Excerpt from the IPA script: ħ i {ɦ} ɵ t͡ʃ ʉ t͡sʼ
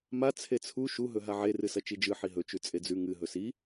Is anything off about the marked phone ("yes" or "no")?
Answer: no